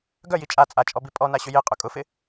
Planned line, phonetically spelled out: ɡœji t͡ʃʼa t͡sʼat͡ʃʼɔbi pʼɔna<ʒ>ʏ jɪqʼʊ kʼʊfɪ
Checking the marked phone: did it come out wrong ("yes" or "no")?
yes